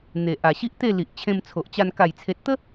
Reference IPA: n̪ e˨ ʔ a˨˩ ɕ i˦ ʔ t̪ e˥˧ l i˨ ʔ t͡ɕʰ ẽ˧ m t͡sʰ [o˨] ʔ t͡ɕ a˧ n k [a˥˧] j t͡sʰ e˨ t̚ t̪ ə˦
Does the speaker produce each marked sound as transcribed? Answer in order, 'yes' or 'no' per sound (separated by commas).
yes, no